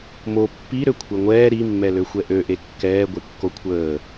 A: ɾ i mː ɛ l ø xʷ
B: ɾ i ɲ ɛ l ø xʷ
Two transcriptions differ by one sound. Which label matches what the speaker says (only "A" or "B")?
A